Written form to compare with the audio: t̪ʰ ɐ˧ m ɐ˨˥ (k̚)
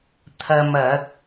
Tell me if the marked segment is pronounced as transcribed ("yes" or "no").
yes